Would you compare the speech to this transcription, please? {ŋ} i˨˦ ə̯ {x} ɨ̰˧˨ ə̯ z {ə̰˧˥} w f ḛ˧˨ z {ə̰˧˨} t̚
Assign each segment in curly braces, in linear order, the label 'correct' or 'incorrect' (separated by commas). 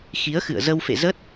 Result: incorrect, correct, incorrect, incorrect